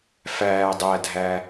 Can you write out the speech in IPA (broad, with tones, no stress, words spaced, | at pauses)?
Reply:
fæː˩dˤæː˩dʱæ˩